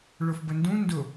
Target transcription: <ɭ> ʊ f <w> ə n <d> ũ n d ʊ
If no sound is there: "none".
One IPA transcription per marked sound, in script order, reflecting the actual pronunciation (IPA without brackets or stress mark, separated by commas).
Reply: ɭ, b, d